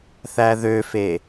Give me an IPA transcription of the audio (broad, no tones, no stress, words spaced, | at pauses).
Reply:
θæðøfe